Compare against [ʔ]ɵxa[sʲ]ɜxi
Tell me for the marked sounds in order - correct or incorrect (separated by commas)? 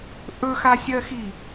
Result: correct, correct